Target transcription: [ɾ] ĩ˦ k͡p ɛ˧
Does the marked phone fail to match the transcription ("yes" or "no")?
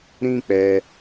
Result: no